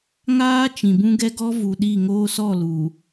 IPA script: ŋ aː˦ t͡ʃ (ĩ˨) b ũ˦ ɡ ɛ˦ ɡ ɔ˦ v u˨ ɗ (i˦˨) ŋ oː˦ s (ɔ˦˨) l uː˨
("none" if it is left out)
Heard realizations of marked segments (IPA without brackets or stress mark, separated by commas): ĩ˨, i˦˨, ɔ˦˨